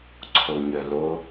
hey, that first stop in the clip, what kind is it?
click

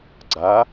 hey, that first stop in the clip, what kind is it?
click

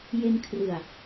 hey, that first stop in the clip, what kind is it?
aspirated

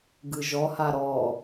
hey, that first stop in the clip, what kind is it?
plain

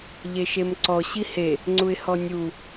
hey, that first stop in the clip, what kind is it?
click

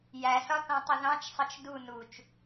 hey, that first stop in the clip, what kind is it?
plain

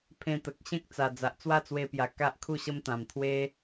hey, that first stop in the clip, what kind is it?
aspirated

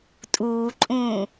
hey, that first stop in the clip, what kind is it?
ejective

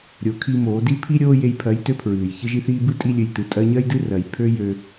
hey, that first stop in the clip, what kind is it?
aspirated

